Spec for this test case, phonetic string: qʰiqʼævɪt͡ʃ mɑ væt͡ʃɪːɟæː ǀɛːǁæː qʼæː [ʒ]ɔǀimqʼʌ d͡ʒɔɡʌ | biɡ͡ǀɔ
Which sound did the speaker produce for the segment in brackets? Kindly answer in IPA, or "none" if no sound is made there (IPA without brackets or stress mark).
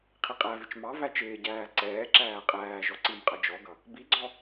ʒ